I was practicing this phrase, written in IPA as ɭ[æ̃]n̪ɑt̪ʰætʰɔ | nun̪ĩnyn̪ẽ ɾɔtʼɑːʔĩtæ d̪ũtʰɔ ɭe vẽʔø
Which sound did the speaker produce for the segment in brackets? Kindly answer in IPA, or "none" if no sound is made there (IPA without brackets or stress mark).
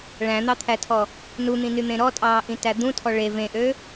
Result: æ̃